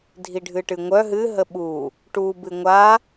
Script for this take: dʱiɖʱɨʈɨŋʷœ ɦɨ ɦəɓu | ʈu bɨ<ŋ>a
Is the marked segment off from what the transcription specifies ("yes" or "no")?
yes